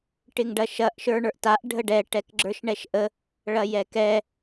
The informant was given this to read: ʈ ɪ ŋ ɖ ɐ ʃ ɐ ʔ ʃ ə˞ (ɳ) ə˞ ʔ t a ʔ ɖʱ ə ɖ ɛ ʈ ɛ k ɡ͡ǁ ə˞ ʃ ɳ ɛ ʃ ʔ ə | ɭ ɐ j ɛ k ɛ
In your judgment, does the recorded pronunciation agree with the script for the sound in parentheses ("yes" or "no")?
yes